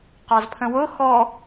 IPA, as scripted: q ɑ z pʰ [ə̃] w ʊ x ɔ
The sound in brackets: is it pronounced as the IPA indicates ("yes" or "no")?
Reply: yes